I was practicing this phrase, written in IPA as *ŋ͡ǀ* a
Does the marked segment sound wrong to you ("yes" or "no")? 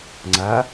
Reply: no